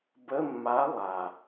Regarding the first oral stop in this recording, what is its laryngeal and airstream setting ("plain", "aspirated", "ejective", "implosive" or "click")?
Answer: plain